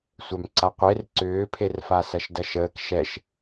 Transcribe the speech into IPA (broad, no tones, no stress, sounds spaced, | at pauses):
sʷ œ m ǀ a qʷ e r ǀ ʏː pʰ e r f a s ɐ ʃ d ɐ ʃ əː k ʃ ɛ ʃ